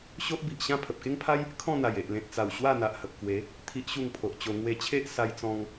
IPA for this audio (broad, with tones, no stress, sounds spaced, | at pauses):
ɕ o˦ ʔ b i˨ ʔ ɕ ã˥˧ pʰ ə˨ p̚ k e˦ ŋ pʰ a˦ j | kʰ ɔ̃˥˧ n̪ a˨˩ j e˨ ʔ l ẽ˨ t̚ t͡s a˨˩ w ɕ w a˥˧ n̪ a˨ ʔ h ə˨ p̚ k w e˨˦ | t̪ʰ i˦ ʔ ɕ u˥˧ ŋ pʰ o˨ ʔ t͡ɕ o˧ ŋ w e˧ t͡ɕʰ e˦ ʔ s a˧ j t͡s ɔ̃˧ ŋ